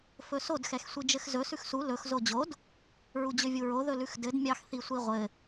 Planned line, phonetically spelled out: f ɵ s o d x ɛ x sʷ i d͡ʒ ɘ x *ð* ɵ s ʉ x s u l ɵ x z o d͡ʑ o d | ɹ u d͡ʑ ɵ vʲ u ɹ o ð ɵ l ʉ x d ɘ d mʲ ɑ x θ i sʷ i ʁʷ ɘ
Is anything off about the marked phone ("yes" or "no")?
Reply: yes